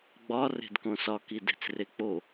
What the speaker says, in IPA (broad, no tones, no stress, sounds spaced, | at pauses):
ɡ͡b ɒ r e̤ d k õ s ɒ k i d e̤ t͡s r e k͡p o